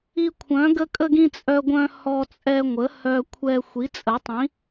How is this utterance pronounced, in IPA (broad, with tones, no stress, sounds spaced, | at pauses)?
i˧ kʷʰ œ̃˩˥ ɡ ə˧ kʼ ə˧ ɡ ĩ˧ t͡sʼ œ˧ ɡʷ œ̃˧ h ɔ˧ t͡sʼ ɛ˧ ŋʷ ə˩˥ h œ˧ kʷʰ ɛ˧ xʷ i˩˥ t͡sʼ ə˩˥ tˤ ĩ˩˥